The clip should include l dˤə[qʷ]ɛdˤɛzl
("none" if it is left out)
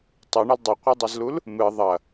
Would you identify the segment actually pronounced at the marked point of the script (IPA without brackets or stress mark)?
qʷ